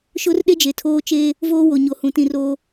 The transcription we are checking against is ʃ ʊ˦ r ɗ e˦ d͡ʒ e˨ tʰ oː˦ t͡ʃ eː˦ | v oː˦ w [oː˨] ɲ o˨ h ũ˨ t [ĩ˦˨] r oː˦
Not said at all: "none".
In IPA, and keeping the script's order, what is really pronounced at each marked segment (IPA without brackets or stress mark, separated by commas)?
o˨, ĩ˦˨